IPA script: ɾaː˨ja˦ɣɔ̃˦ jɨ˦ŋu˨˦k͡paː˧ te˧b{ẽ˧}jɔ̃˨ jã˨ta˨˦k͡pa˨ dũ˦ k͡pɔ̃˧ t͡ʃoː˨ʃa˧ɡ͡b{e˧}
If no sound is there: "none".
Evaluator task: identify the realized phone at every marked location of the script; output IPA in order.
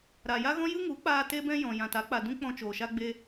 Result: ɛ̃˧, e˧

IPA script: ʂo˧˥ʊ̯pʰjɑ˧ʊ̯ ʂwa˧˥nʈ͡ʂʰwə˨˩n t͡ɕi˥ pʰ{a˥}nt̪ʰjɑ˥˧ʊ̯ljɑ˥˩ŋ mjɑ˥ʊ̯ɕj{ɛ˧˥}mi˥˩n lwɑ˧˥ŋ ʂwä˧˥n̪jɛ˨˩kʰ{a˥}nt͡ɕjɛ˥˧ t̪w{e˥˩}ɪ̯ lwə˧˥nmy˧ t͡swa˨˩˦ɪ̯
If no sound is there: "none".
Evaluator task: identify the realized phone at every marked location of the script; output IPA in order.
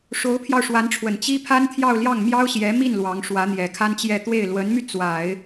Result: a˥, ɛ˧˥, a˥, e˥˩

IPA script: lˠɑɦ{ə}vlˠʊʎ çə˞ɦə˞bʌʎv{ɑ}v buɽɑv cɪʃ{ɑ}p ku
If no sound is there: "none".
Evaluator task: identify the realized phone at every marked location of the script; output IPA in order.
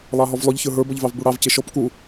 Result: ɔ, ɑ, ɔ

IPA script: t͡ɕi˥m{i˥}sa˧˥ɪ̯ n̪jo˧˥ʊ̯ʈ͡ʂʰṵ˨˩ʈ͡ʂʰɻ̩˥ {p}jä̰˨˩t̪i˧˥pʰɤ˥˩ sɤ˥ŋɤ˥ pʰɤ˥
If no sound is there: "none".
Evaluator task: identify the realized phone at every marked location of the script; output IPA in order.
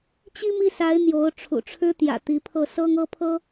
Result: i˥˩, t̪

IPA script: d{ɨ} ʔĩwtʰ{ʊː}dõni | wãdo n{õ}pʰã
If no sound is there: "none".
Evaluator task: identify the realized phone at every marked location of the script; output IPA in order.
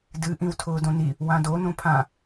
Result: ɨ, ʊː, õ

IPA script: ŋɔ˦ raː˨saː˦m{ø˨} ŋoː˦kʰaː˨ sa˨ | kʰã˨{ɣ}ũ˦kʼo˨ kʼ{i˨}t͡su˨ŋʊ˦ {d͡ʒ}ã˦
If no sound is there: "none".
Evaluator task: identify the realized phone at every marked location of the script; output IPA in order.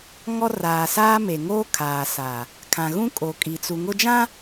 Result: e˨, ɣ, i˨, d͡ʒ

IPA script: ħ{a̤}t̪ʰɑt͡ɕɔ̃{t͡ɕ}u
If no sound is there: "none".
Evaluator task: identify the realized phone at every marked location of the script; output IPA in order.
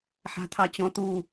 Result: a̤, t̪

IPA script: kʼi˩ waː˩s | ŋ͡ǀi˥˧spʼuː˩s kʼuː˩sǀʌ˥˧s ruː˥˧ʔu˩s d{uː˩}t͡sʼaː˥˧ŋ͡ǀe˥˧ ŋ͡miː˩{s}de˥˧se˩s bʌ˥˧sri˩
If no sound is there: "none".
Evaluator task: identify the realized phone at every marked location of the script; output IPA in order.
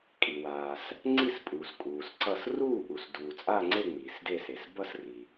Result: uː˩, s

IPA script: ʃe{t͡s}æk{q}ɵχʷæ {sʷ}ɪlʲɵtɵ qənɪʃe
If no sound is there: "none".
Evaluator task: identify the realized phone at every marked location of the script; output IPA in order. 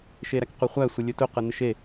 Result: ɾ, q, sʷ

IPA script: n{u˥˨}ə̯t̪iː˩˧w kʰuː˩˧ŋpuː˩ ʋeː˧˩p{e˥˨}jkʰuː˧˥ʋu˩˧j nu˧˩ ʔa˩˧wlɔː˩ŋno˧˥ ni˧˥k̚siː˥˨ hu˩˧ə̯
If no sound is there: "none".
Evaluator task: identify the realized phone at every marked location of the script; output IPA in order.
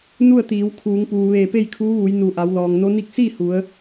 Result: u˥˨, e˥˨

